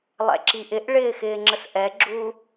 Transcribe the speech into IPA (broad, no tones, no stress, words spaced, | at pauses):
lˠɛ̰ǁiʔɪʔɭɪː xɪːŋ͡ǁəsʔɛɡ͡ǁuː